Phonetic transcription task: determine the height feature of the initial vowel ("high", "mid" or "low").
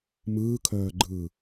high